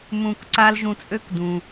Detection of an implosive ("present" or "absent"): absent